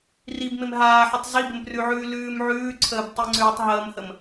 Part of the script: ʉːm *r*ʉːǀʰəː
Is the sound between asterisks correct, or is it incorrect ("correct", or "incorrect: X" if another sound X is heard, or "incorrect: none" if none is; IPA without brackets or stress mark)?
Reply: incorrect: ʕ